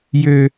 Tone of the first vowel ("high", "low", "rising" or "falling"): low